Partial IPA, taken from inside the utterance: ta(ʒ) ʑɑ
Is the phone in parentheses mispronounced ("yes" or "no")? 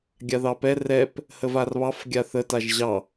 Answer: no